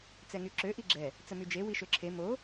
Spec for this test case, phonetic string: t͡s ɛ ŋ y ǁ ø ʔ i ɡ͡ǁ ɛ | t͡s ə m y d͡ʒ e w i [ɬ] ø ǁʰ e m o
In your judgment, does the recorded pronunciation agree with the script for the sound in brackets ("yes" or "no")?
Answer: no